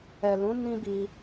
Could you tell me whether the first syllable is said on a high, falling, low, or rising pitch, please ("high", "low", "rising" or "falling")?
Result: low